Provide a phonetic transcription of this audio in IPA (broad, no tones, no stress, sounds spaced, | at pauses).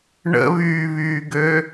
ɳ ə̰ β yː β yː ɡ ø